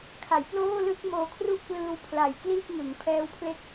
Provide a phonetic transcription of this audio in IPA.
kʰa˩˦jploː˥˩lɯ˥˩k̚ moː˧kʰru˥˩ʔklɯː˧wpʰla˨˩j kliː˥˩k̚ŋɯ˩˦ŋ pʰɛː˦˥wpʰle˦˥k̚

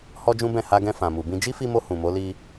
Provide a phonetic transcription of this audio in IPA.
hɔ˦d͡ʒũ˦bɛ̃˦˨ ha˧ɡɛ̃˧ fã˨mu˨bĩ˧ d͡ʒi˦fi˧mo˧ hũ˨mo˨˦li˧

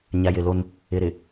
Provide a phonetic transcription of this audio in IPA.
ɲa˨jɪ˨lo˦n | ɪ˨ ɾɪ˨

